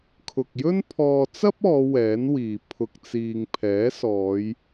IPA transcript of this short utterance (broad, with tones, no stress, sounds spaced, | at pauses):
kʰ ʊ˨ k̚ j ɵ˥ n pʰ ɔː˧ t͡s ɐ˥ p̚ ɔː˨˧ w ɛː˨˥ n w iː˨ pʰ ʊ˧ k̚ t͡s iː˧ ŋ pʰ ɛː˨˥ s ɔː˨˧ j